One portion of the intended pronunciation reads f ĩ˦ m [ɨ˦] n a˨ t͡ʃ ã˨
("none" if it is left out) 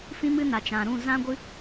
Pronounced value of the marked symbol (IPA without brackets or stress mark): ɨ˦